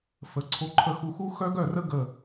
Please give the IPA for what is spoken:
fə˨ ǀʰo˨ǃʰə˨xu˨xu˦ xœ˦ɡœ˦˨rə˦ ɡə˨

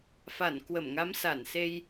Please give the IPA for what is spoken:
fa˧˩n kwə˧˩mŋa˨˦msa˧˩nse˧j

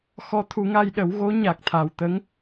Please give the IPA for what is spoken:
xɔ˧˥t̪ʰu˨˩˦ŋa˧j ɗə˨˩˦w ɣo˧˥ ɲa˨˩k̚t̪ʰa˨˩wt̪ə˧˥ŋ

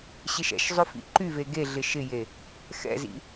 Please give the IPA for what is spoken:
ɕɪʃɛ̰ʃzˤʏ fḭǃyve ɡeɮɪ ʃɪje | xɛ̰zḭ

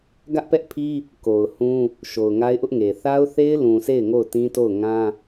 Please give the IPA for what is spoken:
ɡä˦ʔpɛ˦ʔpʰi˦ | ko˨ʊ̯hũ˦ | ʃo˨ʊ̯ŋa˦ɪ̯ʔʊ˦ʔŋe˨ θa˦ʊ̯θe˦ɪ̯ lũ˨se˦˨ɪ̯ ŋo˦˨ʊ̯tĩ˦to˦˨ʊ̯ŋã˦

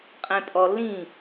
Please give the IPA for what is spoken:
qʼẽpʼɔ lːĩ

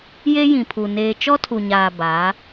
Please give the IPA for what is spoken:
je˦jĩ˨pʰu˨ neː˨t͡ʃɔ˦tʰu˨ɲaː˨ baː˨˦

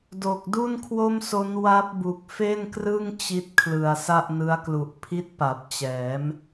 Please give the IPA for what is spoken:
do˨˩k̚ du˥˩nkʰwo˥˩mso˦˥n wa˦˥p̚bu˨˩k̚ fe˥˩nkrɯ˥˩ŋ t͡ɕi˦˥t̚kʰlɯ˨˩a̯ sa˥˩ʔnɯ˦˥a̯klu˨˩ʔ pʰi˦˥t̚pa˨˩p̚t͡ɕɛː˩˦m

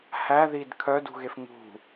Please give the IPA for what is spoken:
hæðid kʰœdṳɣef ŋṳ

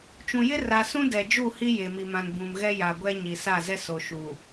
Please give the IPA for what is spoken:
t͡ʃũ˨jɪ˦ra˨ sũ˦dɛ˨d͡ʒu˦˨ hi˦je˨mi˨mã˨n bũ˨mɣɛ˦ ja˨ ɡʷɛ˦ɲi˨sa˦˨zɛ˦ so˨ʃu˨

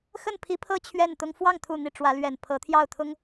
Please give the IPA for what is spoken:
xə˥˩npʰi˧˥ pʰɤ˥˧ t͡ɕʰɥɛ˥˩nt̪ʊ˥ŋ fwɑ˥˩ŋt̪ʰu˨˩ n̪i˥˩ ʈ͡ʂwä˧˥lɥɛ˨˩n pʰɤ˧˥ t̪ʰjɑ˥˩ʊ̯t̪ʰʊ˥ŋ

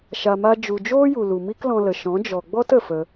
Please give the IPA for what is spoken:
ʃa˨ma˧ d͡ʒu˨d͡ʒoː˦ju˨ lu˨mi˦klɔ̃˧lə˨ ʃɔ̃˨˦d͡ʒɔ˨ ɡ͡bɔ˦t ə˨fə˧

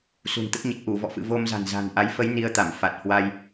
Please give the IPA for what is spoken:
sṳ˨˩nt̪ə˦˥t̚ɲə˨˩t̚ ʔu˧˩vɔ̰˧˨fɨ̰˧˨ vo˧mza̤˨˩nza̤˨˩n ʔa˨˦jfə˨˦j ni˧ə̯t̪a˧˩m fa˨˩t̚hwa˧j

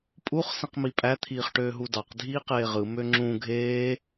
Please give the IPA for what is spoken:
pʼuχ sĩqmipʼæ t̪ʰiːχʈøːɦudɑq dʱiːqeːʁɯ møŋ͡ǁũ ɡʱeː

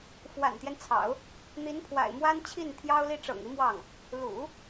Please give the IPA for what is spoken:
fwa̰˨˩nt̪jɛ˦nt͡sʰɑ̰˨˩˦ʊ̯ | n̪i˧˥npʰwa̰˨˩ɪ̯ mwa˥nt͡ɕʰi˥˩n t̪ʰjɑ˥ʊ̯li˥ ʈ͡ʂɤ̰˨˩ŋi˧˥ mwɑ˥˩ŋ | lṵ˨˩˦

